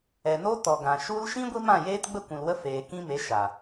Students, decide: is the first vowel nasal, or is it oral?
oral